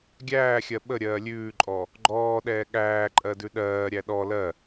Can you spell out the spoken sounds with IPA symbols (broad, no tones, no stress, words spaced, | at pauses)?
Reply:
ɡʲæːxʲɜ ɓəɾʲɜː lʲʉːǃʼɔ | ɡ͡ǃɔːɗɛː ɠæːǃʼɜdʉ ɗɜːɾʲæ ɗɔ lɜ